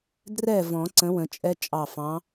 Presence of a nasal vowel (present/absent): present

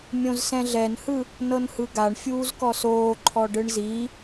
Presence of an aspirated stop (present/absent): present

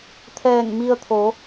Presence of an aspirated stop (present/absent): present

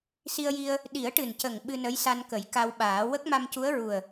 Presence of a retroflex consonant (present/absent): present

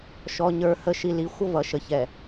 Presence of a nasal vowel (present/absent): absent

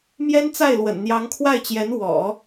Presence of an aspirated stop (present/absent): present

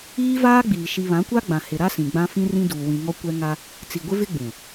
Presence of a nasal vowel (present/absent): present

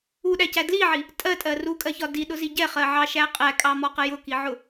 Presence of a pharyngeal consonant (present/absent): present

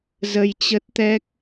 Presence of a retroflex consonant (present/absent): absent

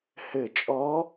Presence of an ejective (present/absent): present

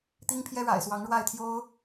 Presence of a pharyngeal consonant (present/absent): absent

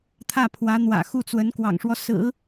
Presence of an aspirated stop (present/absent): present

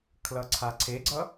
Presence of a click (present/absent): present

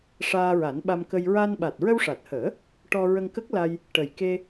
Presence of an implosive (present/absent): present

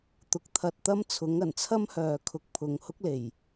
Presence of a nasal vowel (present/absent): absent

